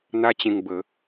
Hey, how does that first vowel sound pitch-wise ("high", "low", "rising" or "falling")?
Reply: high